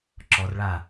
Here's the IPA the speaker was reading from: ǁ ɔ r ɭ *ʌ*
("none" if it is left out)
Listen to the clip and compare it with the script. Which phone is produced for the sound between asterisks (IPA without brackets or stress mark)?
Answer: a